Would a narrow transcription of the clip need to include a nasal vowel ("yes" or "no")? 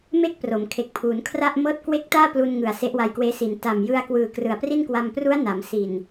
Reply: no